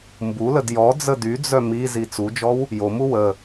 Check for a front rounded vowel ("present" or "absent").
present